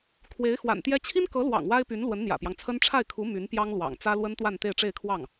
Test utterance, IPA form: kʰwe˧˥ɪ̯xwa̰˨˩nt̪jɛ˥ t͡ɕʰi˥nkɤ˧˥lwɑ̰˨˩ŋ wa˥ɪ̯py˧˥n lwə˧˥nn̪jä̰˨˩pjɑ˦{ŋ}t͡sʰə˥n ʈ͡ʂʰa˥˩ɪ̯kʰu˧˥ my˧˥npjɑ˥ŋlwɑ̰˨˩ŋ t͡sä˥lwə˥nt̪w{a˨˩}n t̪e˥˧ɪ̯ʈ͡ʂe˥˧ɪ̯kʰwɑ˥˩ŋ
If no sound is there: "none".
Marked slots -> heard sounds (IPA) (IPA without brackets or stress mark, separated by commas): ŋ, a˥˧